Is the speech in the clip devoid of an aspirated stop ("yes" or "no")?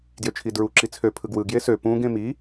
no